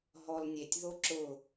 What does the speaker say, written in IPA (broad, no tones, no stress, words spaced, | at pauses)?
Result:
ɦɔlnʲetʲ ðoǁʊ